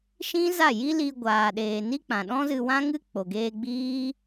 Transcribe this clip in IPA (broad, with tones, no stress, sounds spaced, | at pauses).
ʃ ĩ˦ z a˦˨ j i˦ l i˧ ɡʷ aː˨ ɗ eː˨ n i˦ k͡p ã˨ ɗ ɔ̃˦ z ɨ˧ w ã˦ ŋ ɨ˦ k͡p o˨ ɡ eː˧ ɡ͡b iː˦